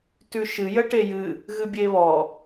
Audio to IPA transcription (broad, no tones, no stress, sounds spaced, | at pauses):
t ʉ ʃ ɨ j ə ʈ e j ɨ | ɣ ɨ bʲ e β ɔ